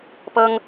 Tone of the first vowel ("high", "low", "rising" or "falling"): high